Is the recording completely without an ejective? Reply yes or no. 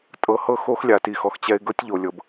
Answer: no